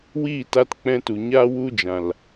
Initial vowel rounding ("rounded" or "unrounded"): unrounded